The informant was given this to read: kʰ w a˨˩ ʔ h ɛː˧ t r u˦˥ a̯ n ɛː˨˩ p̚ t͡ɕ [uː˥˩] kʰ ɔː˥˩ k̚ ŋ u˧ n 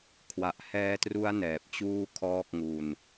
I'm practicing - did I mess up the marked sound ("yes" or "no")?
no